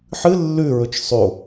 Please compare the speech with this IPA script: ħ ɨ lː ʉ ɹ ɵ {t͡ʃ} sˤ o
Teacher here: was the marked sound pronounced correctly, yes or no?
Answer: yes